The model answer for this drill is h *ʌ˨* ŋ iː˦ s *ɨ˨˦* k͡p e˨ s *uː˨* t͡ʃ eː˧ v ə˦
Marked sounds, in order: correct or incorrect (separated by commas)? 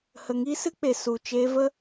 incorrect, incorrect, incorrect